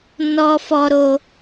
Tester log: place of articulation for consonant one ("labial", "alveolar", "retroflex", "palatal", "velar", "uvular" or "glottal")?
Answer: alveolar